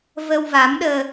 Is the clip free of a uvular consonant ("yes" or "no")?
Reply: yes